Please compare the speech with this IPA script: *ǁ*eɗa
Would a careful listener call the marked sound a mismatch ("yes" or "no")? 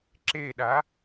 no